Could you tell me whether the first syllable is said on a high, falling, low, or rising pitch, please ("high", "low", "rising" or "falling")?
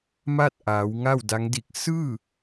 falling